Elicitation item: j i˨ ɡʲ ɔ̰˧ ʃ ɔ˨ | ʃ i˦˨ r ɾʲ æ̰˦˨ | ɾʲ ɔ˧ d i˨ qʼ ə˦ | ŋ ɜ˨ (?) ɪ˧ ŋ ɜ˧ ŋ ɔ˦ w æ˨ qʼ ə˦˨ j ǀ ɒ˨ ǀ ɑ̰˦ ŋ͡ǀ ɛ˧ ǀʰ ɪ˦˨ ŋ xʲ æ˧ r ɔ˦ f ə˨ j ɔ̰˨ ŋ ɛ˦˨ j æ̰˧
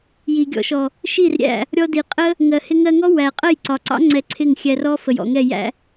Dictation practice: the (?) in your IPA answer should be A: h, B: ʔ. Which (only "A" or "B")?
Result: A